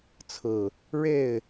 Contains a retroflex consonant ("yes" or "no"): yes